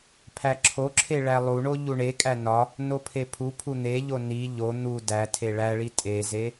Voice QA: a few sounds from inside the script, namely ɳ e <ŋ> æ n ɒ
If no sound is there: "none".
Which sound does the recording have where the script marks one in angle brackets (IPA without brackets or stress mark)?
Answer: kʼ